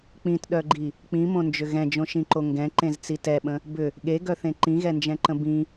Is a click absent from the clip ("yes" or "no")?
no